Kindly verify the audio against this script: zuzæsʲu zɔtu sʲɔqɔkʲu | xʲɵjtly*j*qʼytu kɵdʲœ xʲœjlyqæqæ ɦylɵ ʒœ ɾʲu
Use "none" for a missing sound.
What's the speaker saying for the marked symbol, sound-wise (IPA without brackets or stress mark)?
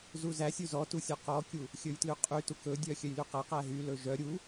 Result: none